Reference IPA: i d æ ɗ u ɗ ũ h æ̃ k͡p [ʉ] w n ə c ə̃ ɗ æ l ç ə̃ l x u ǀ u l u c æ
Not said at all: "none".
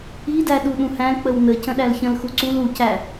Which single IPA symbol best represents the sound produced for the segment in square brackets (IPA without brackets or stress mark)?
ə